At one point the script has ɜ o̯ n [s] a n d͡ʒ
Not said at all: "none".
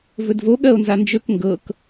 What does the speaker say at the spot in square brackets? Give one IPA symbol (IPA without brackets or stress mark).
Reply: z